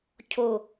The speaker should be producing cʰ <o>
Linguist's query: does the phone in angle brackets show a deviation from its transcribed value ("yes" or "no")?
no